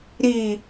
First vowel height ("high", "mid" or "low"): high